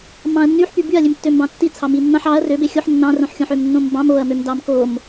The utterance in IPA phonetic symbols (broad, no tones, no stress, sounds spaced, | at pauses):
m ɑ̃ ɐ̯ nː y ħ p y b y ɐ̯ lʲ ø m tː ø m b ɑ̃ tː i t͡sʰ ɑ m i nː ɑ̃ ħ ɑ ɐ̯ r ø b e xʲ o ħ nː ɑ̃ r õ ħ xʲ õ ħ ø m nː õ m b ɑ̃ m o ɐ̯ m ø m d ɑ m k o m